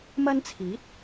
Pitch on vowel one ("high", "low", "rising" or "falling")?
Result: high